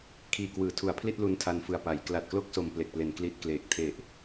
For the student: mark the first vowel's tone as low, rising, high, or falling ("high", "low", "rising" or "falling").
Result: low